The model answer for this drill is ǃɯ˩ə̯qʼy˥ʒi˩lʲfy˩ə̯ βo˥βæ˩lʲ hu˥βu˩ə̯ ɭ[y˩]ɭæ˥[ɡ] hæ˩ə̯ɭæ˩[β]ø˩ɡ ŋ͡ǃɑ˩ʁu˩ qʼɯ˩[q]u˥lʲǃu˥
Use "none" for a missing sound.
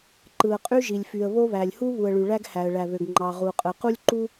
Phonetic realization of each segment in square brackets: y˩, ɡ, β, q

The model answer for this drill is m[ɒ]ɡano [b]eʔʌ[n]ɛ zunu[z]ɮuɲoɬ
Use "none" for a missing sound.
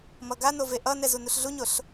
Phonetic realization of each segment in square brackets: ʌ, v, n, ɬ

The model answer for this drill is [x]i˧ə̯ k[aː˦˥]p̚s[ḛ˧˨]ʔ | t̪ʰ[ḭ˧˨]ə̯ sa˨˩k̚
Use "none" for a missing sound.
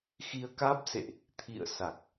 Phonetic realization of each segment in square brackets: x, aː˦˥, ḛ˧˨, ḭ˧˨

